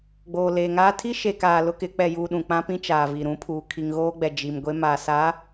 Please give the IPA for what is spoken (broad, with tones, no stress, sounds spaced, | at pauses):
ɡ͡b oː˨ l eː˨ ŋ aː˦ tʰ i˦ ʃ e˨ k aː˨ l ʊ˦ k ɪ˨˦ k͡p ɛ˨ j uː˦ ɗ ũ˨ k͡p ã˦ p ĩ˦ t͡ʃ aː˨ v i˨ ɾ ũ˦ pʰ uː˨ kʰ i˨ ŋ ɣ oː˦ ɡ͡b ɛ˨ d͡ʒ i˨ m ɡʷ e˦ m a˨ s a˨˦